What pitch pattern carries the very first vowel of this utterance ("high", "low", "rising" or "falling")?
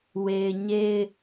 low